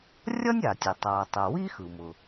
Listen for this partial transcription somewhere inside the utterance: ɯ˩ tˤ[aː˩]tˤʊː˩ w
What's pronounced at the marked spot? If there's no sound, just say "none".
aː˩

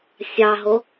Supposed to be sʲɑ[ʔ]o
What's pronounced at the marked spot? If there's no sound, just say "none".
ɦ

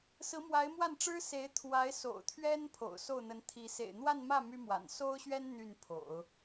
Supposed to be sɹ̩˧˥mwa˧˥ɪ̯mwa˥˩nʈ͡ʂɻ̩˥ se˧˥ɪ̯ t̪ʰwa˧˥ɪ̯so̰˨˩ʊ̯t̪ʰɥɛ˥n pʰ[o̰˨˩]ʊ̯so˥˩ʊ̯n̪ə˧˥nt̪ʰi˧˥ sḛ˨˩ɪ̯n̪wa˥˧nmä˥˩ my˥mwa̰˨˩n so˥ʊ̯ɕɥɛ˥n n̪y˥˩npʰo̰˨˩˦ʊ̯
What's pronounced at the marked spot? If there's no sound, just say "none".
o̰˨˩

